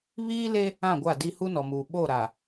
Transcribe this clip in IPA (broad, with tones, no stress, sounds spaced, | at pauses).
β iː˦ l e˦ | ã˦˨ ɡʷ a˦˨ d i˦ h u˦ n ɔ˨ m uː˨ ɓ o˦˨ ɾ a˨